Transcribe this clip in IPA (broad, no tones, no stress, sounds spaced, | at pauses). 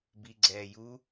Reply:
b i ɡ͡ǀ ɛː j u